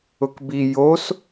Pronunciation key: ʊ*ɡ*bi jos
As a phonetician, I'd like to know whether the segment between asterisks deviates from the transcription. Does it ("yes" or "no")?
yes